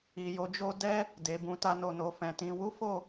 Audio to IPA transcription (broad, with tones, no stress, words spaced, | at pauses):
i˨jo˨˦d͡ʒo˦ dɛ˦ | de˨bũ˨ ta˧no˨no˨ fɛ̃˨tĩ˧ wu˦fo˦˨